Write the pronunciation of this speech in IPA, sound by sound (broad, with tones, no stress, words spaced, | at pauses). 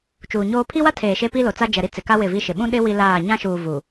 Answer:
t͡ʃuː˨ɲoː˦ pʰi˦wa˦tʰeː˨ ʃe˦pi˦lo˨t͡sa˦ d͡ʒɛ˨ɾi˦ t͡sɪ˨ka˦ wɪ˦˨vi˦ʃɪ˨ ɓũ˦ɗɪ˦ wi˦laː˦˨ ɲã˦ʃuː˨ vu˨